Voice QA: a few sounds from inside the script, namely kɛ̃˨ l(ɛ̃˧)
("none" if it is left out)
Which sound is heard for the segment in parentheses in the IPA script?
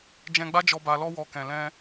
ɛ̃˧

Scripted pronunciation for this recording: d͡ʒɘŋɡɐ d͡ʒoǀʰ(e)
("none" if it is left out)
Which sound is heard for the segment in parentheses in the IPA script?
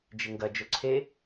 e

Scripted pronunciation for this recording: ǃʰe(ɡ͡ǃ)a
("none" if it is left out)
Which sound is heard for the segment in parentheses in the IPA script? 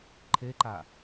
ǃ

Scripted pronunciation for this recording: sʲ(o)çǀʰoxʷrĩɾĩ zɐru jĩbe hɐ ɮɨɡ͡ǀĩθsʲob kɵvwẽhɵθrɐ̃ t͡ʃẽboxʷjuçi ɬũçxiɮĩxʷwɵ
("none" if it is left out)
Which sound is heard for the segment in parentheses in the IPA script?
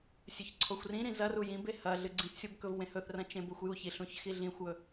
ɵ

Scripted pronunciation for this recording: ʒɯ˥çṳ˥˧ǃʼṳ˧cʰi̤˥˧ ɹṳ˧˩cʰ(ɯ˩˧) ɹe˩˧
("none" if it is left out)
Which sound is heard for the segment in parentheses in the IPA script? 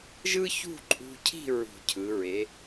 ɯ˩˧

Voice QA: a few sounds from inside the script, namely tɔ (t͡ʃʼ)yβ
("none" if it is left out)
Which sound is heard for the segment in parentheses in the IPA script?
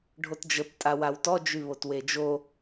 d͡ʒ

